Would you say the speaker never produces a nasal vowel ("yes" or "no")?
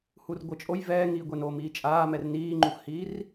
yes